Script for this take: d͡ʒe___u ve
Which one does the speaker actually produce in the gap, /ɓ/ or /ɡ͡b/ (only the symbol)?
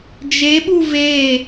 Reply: ɓ